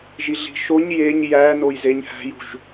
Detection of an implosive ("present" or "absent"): absent